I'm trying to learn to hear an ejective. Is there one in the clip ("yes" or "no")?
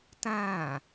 no